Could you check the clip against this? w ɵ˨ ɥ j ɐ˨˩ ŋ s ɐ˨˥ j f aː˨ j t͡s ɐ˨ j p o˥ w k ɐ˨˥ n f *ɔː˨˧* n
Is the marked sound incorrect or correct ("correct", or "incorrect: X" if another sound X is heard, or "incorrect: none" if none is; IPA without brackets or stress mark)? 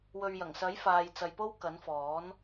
incorrect: ɔː˨˥